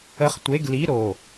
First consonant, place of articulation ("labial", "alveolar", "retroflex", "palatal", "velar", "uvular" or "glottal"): uvular